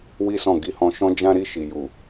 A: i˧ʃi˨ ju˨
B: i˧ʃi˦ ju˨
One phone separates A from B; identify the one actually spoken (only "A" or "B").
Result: A